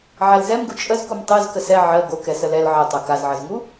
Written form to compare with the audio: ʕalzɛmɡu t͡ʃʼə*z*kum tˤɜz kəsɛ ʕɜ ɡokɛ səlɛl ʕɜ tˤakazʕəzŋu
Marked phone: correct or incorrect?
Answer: correct